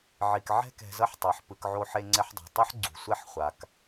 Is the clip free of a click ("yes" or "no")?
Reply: no